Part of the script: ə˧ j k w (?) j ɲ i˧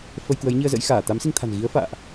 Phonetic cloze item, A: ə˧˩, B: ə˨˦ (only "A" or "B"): B